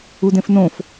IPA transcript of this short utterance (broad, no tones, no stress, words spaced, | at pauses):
udẽfnõf